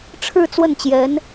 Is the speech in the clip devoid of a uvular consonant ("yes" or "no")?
yes